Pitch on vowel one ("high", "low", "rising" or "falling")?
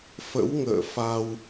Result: rising